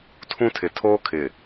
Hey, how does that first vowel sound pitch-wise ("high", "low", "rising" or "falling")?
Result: high